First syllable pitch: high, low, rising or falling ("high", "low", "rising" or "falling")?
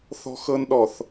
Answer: high